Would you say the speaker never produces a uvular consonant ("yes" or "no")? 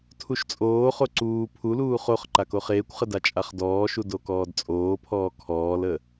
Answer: no